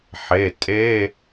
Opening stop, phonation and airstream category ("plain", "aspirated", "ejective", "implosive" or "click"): ejective